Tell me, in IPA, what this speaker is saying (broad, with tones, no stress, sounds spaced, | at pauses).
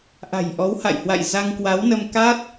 ʔ a̤˨˩ j ʔ ɔ˨˦ w h a̰˧˨ j h w a̰˧˨ j z a˧ ŋ k w a˨˦ w n ə˧ m k a˦˥ t̚